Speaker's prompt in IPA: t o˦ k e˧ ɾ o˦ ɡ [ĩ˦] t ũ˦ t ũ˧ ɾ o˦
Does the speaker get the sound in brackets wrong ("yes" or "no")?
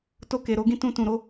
no